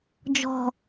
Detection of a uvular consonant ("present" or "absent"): absent